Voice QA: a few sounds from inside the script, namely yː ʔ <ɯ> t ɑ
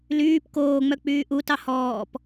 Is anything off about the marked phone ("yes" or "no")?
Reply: yes